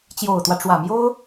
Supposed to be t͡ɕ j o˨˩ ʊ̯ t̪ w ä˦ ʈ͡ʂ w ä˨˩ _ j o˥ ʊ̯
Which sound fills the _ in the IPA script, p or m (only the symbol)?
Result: m